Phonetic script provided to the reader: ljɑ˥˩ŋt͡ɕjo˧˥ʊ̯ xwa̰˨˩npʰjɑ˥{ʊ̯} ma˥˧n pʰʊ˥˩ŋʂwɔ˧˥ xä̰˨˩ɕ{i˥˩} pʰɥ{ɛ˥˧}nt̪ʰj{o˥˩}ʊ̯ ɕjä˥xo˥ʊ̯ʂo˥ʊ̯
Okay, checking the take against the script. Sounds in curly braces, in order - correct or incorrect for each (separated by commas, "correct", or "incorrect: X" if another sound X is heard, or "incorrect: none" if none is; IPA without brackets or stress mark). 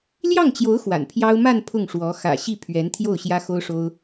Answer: correct, correct, incorrect: ɛ˧˥, correct